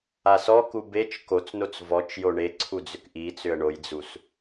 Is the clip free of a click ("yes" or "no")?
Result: no